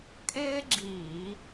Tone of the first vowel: high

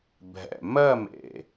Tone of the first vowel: low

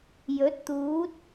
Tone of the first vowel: rising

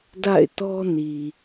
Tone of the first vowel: falling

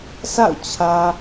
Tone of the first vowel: falling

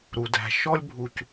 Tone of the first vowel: low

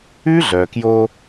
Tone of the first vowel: high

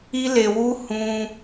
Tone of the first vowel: high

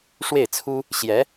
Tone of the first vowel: falling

